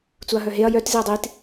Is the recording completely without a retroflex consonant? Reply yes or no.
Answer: yes